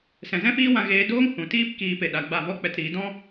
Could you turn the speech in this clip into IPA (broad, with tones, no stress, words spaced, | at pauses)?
sɛ̃˨zɛ̃˦ fiː˦wã˧ ɣeː˧doː˦ŋ hũ˨ tiː˦p kiː˧pe˨ɗa˨ ɡ͡ba˦˨vɔ˦k͡pɛ˧tɾiː˨˦ dɔ̃˦